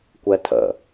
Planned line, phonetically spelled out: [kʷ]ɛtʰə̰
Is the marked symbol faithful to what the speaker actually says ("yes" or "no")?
yes